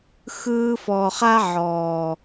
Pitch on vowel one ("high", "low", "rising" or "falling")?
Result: high